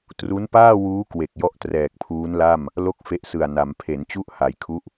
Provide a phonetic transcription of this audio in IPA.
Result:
tru˦˥npaː˥˩wuː˦˥ kwe˨˩k̚jɔ˦˥ʔ trɛː˨˩k̚pʰuː˦˥nla˥˩m | lo˥˩k̚fe˦˥ʔsɯ˨˩a̯na˩˦m pʰe˩˦n t͡ɕu˥˩ʔha˩˦j kʰu˦˥ʔ

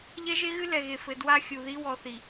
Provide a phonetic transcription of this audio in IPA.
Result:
ʎɛ˦ʒe˦ɣɨ˦ lɛ˨ɣe˨fɘ˨ dwa˦xʲu˨ði˦ wɔ˨θi˨

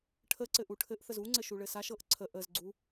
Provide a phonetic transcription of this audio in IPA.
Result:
ʈʰəǀɘ ʔuʈʰɘʔθəz uŋ͡ǀɘ ʃuɭɘsaʃɤʔ ǀʰə ʔəzɡ͡ǀu

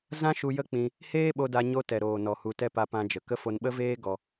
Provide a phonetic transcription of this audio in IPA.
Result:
zã˦ʃu˧ jə˦ k͡pĩ˧ | heː˦ɓo˧da˧ ɲo˧tɛ˨ɾoː˨nɔ˨ hu˧tɛ˦ pa˧pã˧d͡ʒə˨kə˦ fo˧nɓə˦veː˦ ɡɔ˧

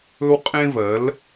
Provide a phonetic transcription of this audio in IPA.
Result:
ɵ˦wqʼẽ˦vɜ˨˦l

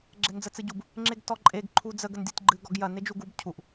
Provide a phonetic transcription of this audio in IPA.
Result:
ɡ͡ǁɛnd͡zət͡sɨɟub | ŋ͡ǁeɡtɔǃʼeɡ ǃʰud͡zəɡ əndʲɔtʲɡ͡ǃɨ ɡɔɡjɐ ned͡ʒuɡub cʰuʔ

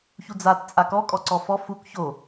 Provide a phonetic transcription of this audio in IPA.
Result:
çud͡zat t͡sʼakɔ kʼɔǀɔfɔ fuk ço

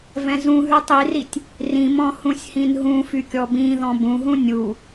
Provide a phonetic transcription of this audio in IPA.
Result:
vɛ̃zũɦy tˤiritʲ | rĩmɔ̃ hũsʲhĩnɦũfy kʲɔbĩðɔ̃ bũɦũ nʲu

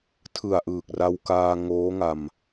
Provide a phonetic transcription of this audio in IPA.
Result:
tʰɯ˨˩a̯ʔɯː˨˩k̚ ra˧wkaː˧ ŋoː˦˥ŋa˧m

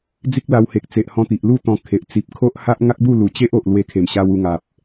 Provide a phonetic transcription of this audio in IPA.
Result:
d͡zi˦k̚la˧whe˨k̚t͡se˨ʔ hɔ̃˧t̪i˨ʔlu˥˧ t̪ɔ̃˧ kʰe˨ʔ t͡si˨p̚kʰo˦ʔha˦ʔ ŋa˦k̚bu˥˧lu˨˩ t͡ɕe˦ʔo˨ʔ lwe˧kʰe˨˩mɕa˧w u˧ŋa˨p̚

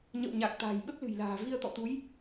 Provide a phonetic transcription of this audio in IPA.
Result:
ɲə̰˧˨wɲa˨˩k̚ t̪a̤ː˨˩jɓə˦˥p̚lɨ̤˨˩jla̤ː˨˩ vi˧ə̯t̪ɔ̰˧˨t̪u˨˦j

